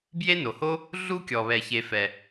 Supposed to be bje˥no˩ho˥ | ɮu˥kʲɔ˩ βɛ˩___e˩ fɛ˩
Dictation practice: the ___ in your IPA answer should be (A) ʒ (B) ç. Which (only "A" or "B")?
B